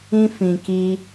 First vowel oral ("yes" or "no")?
no